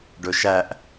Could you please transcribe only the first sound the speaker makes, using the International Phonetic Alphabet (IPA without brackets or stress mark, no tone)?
ɖ